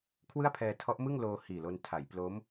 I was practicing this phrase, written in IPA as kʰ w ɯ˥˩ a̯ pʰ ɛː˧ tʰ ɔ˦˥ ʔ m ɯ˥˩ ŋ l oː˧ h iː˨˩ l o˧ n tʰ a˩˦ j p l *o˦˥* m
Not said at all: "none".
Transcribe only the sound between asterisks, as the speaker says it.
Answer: o˦˥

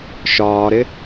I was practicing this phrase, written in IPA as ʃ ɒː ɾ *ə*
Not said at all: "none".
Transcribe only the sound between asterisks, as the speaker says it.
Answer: ɪ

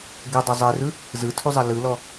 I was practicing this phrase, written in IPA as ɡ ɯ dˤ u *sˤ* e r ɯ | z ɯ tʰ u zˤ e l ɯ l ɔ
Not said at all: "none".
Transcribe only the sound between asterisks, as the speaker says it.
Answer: zˤ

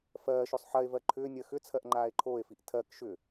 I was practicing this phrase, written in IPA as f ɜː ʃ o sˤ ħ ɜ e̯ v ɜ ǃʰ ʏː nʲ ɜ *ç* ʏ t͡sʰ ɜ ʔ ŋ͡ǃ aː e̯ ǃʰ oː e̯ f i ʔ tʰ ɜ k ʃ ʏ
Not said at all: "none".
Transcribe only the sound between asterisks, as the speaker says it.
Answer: x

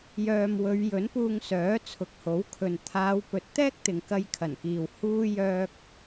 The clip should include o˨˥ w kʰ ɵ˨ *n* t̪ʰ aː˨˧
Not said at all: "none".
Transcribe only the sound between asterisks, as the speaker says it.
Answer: n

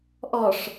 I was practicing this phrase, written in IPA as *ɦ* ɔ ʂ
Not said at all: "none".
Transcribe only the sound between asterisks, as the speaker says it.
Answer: ʔ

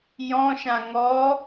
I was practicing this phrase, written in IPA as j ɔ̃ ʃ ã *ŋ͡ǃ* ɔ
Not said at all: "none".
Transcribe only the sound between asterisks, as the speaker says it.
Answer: ŋ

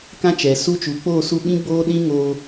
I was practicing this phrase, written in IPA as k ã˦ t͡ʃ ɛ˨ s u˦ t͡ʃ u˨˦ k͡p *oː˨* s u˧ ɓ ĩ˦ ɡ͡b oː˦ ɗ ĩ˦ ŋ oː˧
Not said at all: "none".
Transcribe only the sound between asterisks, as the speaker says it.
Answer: oː˦˨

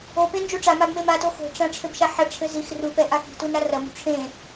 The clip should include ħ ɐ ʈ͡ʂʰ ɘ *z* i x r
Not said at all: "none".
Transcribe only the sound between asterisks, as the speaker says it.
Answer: z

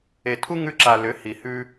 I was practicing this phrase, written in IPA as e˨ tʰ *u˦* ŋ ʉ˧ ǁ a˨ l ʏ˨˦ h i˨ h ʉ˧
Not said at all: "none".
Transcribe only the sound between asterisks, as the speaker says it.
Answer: u˦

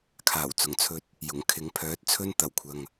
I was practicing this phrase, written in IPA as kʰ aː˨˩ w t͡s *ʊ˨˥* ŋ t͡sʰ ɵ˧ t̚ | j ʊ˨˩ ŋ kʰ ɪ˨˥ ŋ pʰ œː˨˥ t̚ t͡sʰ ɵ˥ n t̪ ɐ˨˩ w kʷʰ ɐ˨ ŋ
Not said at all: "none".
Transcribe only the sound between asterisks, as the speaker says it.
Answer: ʊ˨˩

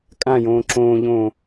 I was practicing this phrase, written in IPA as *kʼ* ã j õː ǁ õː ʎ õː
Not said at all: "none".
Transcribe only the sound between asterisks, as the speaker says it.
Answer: kʼ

